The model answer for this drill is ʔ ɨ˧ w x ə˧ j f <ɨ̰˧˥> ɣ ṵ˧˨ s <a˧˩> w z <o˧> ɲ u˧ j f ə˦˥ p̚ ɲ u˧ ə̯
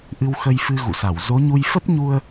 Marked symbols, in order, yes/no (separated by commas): no, yes, no